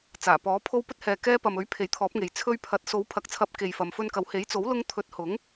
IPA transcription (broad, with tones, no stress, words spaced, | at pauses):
t͡saː˨˩pɔː˨˥ pʰo˧wpɵ˧t̚hɛː˨ kɛː˧pɐ˨mɵ˨˥ɥ pʰe˨˥jt̪ʰɔː˨˥p̚ŋe˨j t͡sʰɵ˧ɥpʰɐ˨˥t̚so˨˥w pʰɐ˨˥k̚t͡sʰɐ˨˥p̚ke˨j fɐ˨˧mfɵ˧nkɐ˨˥w he˨˥jt͡so˨˥wlʊ˧ŋt̪ʰɵ˨˥t̚ hʊ˨˥ŋ